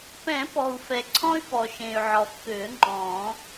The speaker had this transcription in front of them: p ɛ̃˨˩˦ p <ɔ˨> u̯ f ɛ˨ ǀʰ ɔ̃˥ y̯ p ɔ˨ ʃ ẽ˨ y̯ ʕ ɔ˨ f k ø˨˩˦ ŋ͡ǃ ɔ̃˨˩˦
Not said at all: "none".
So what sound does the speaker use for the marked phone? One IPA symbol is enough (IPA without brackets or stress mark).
ɔ˨